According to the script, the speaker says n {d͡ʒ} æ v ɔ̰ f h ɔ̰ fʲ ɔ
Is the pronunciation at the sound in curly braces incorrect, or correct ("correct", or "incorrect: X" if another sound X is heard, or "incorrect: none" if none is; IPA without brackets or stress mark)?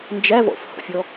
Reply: correct